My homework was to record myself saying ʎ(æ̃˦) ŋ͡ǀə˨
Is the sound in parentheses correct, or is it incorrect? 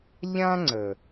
incorrect